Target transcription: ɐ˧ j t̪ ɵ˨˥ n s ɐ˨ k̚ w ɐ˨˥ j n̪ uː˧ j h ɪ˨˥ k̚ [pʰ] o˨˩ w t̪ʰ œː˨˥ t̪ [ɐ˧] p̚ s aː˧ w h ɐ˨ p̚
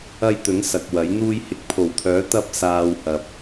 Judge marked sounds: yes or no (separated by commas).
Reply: yes, yes